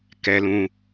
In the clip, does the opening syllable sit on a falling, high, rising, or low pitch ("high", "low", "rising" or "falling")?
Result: low